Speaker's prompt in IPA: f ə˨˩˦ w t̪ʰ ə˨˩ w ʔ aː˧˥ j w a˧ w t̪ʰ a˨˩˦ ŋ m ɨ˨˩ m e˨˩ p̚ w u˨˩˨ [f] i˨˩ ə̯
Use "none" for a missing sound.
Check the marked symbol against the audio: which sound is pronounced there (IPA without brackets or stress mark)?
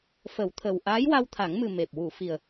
f